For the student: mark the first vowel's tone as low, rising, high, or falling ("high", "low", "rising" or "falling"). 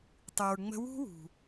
low